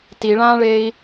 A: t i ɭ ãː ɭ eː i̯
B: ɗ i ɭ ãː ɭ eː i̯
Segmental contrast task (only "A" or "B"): A